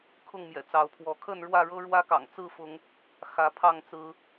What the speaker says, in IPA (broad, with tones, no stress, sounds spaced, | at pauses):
kʰ ʊ˥˨ ŋ m j ɛ̰˨˩ t͡s ɑ˨˦ ʊ̯ pʰ w ɔ˨˦ kʰ ə˥˨ n ɻ w ä˥˨ ɻ ɤ˦ ɻ w ä˦ k ɑ̰˨˩ ŋ t͡s ɹ̩˥˨ f ʊ˨˦ ŋ | x ä˨˦ pʰ ɑ˥˨ ŋ t͡s ɹ̩˦